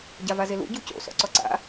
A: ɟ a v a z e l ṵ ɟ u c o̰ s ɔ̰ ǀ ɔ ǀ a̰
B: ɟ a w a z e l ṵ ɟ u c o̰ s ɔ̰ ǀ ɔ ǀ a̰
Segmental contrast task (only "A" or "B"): A